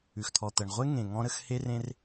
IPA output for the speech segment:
ʉ˩ x t̪ʰ ɔ˩ t̪ ɜ˩ ɳ ʁʷ e˧ ŋ ẽ˩ ŋ ɔ̃˧ ɾ ə˧ x h e˧ r ẽ˧ r

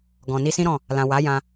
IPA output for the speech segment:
ɡ ɔ̃˨ n i˧ s ĩ˦ ɾ ɔ̃˦˨ | l ã˨ w a˨˦ j ã˧

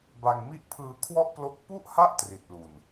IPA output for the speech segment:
b a˧ ŋ m i˥˩ ʔ pʰ ɯː˧ kʰ w ɔ˥˩ ʔ p l o˦˥ k̚ p u˥˩ ʔ h a˥˩ ʔ t r i˨˩ t̚ l u˨˩ n

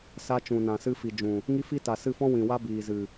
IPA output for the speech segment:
s a˧ t͡ʃ ũ˨ n ã˨ s ɨ˧ f i˨ d͡ʒ ũ˨ | ŋ i˦ f i˦ t a˨ s ɨ˦˨ f ɔ̃˦ w ĩ˨ w a˦ b iː˨ z ɨ˨

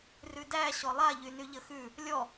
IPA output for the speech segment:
r ʉ d æ ɕ ɔ lˠ a ʎ y n y ʎ ə x ʉ | lʲ ɔ

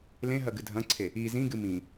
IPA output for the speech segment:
l ẽ ɦ ɐ ɡ ɨ dʱ ɐ̃ ǀʰ e | i z ĩ ɡ ɨ m ĩ

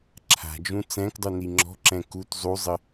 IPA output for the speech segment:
ǁʰ a̤ d͡ʒ ũ t͡s ɛ̃ k dˤ u n i ŋ͡ǁ ɔ̤ ǁ ɛ̃ k u t zˤ u zˤ ɘ

